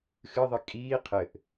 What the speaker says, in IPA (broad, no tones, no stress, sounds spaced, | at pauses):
x ɨ ðˤ ɨ kʼ iː qʰ ɘ ʔ